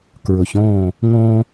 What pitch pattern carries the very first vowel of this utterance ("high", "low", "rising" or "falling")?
low